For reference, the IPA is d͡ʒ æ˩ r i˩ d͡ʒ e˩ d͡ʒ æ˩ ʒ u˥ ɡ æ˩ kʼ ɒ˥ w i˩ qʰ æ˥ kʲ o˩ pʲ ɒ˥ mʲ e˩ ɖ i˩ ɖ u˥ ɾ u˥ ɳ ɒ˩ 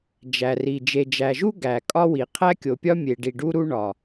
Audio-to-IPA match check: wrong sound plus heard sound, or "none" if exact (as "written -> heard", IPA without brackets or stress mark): none